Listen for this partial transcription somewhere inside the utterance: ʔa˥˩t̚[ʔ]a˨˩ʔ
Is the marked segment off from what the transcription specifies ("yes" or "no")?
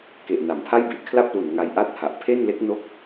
yes